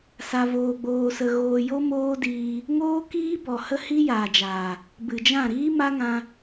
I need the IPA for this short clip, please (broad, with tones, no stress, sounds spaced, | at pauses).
s a˧ v oː˧ ɡ͡b oː˧ s ə˧ ɣ oː˧ j o˦ m oː˦ d iː˧ | ŋ oː˦ k iː˦ b ɔ˨ h ə˦ h i˦ j aː˨ d͡ʒ aː˨ | b ɨ˨ d͡ʒ ã˦˨ ɾ iː˦ m a˦ ŋ ã˧